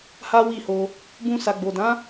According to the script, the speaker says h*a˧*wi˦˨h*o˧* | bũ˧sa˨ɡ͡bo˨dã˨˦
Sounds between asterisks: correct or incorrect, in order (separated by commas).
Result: incorrect, correct